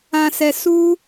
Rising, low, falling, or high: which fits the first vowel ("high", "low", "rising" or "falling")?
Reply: low